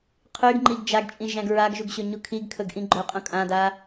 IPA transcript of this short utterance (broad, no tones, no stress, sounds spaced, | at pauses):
qʰ y ɡ ŋ͡ǃ i ɡ d͡ʒ a ɡ t͡ʃʼ ĩ ʒ æ̃ ɡ ɹ a ɡ ʒ u ɡ ɕ ɵ ɲ u kʰ i ɡ kʰ ɵ ɡ ʔ ĩ ɡ͡ǃ ɵ qʼ ũ kʼ ã d a